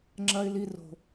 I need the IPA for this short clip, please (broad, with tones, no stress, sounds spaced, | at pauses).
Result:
ŋ͡ǁ ɐ˦ ɪ̯ l i˦ r o̤˦